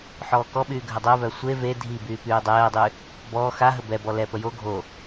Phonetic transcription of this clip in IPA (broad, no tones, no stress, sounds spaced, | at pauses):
ħ ɔː k ɔ ɓ yː ɡʱ ə dˤ o v œ sʷ e v e dʱ i b yː p yː dˤ ɛː dˤ y | b ɔː x a ɦ ə b ɛ b ɔ l ɛ p ə j o ɡʱ o